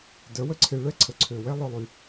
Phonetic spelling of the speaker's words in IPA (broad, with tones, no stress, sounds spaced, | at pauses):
d œ˨˦ w ə˦ ǀʰ e˧ ɭ ɛ˦ ǀʰ ə˨ ǀʰ ø˨ w ɛ˦ lˠ œ˧ lˠ y˧